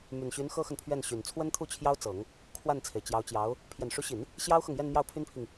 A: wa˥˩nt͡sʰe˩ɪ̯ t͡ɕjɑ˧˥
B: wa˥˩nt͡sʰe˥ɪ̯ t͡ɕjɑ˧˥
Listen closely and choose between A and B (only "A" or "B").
A